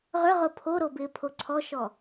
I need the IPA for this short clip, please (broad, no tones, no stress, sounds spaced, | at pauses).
ʁ ʏ ʁ ʊ pʰ o ɾ o b ɪː pʰ o ǀʰ ɔ ʃ ɔ